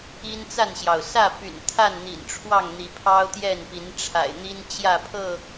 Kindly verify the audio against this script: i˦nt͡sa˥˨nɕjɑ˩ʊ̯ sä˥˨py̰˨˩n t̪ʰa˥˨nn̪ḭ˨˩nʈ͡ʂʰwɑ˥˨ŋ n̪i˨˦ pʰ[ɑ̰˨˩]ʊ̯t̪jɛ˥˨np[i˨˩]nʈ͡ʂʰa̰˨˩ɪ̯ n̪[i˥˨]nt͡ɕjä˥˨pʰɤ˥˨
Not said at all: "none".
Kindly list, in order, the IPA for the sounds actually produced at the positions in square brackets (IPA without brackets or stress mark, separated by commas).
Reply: ɑ˦, i˨˦, i˦